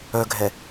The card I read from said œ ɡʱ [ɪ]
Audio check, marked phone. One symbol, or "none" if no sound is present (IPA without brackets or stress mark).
ɛ